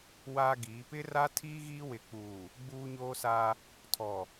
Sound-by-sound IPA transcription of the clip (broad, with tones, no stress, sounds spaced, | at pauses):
w aː˦ ɡ iː˨˦ p ɪ˦ r a˦ tʰ iː˦ ɣ iː˦ w ɪ˨ k͡p uː˨ | ɡ͡b uː˦ ɲ oː˦ s a˦ | tʰ ɔ˨